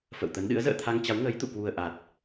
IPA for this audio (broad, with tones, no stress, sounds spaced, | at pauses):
f ə̰˧˨ w t̪ ə˨˦ n ɗ ɨ̰˧˥ ə̯ z ə̰ː˧˨ t̪ʰ a˧ ŋ t͡ɕ a˨˦ w ŋ əː˨˦ j t̪ ṵ˧˨ k w u˨˩ ə̯ ʔ a˨˩ t̚